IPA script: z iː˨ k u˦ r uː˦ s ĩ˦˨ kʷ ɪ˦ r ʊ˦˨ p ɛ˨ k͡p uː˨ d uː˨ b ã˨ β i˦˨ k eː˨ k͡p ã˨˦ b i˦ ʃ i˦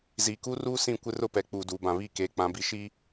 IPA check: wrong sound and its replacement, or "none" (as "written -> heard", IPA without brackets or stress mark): none